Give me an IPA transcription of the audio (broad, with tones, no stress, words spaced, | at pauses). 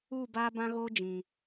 uː˦˨baː˦bã˦ɣoː˦ d͡ʒĩ˨